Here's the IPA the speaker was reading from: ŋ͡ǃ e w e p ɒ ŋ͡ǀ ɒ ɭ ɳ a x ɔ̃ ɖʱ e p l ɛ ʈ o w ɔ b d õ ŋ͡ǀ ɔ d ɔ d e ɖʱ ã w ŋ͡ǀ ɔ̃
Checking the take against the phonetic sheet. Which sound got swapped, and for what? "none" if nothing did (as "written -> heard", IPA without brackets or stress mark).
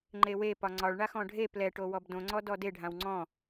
none